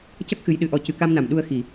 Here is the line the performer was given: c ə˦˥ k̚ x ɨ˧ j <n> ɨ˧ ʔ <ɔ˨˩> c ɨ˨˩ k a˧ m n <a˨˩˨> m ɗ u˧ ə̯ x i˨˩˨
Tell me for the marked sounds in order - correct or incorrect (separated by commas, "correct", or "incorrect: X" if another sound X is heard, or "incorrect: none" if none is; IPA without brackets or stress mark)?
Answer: incorrect: ɗ, incorrect: ɔ˧, correct